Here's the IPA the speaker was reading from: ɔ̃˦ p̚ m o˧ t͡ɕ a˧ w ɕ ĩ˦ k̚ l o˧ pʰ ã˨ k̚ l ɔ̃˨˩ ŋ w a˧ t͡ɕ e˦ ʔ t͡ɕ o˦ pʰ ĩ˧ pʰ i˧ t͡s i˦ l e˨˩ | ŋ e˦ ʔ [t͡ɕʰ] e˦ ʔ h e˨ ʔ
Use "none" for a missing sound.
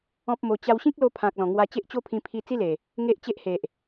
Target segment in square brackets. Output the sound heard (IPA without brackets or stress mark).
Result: t͡ɕ